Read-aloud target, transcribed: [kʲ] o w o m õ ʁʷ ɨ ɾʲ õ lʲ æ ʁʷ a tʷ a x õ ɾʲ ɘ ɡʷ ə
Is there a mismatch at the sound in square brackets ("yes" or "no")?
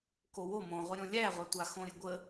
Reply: yes